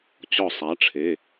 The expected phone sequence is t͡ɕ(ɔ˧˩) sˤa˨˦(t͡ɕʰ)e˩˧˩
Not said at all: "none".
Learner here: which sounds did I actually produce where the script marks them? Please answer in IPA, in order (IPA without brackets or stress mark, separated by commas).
ɔ˧˩, ʈ͡ʂʰ